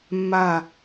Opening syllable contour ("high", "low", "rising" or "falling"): falling